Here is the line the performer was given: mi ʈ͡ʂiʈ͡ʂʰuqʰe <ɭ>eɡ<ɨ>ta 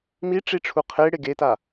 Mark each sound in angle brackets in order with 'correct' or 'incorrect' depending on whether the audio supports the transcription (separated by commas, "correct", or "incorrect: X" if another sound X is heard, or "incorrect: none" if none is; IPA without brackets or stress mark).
incorrect: ɽ, incorrect: e